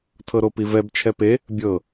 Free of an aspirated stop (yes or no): no